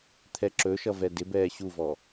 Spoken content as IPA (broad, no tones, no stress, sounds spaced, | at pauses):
t̪ʰ ɛ ǁ ɵ ʃ ʌ v ɛ d ɪ b ɛː ɕ u v ɔ